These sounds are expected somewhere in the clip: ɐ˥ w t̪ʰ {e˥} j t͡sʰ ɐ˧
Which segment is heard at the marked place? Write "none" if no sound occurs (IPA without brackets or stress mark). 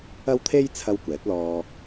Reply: e˥